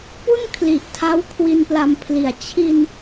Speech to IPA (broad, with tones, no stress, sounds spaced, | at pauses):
p u˥˩ n kʰ l i˨˩ ʔ tʰ a˦˥ w kʰ w i˧ n p l a˧ m pʰ l i˨˩ a̯ t͡ɕʰ i˧ n